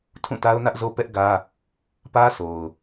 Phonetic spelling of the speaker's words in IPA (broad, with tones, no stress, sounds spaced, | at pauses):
tʰ ũ˦˨ t a˦ ʊ̯ n ä˦ ʔ z o˦ p ɛ˦ ʔ ɡ ä˦ | p ä˦ s o˨ ʊ̯